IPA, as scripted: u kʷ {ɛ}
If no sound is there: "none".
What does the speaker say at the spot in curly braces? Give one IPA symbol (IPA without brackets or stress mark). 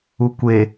e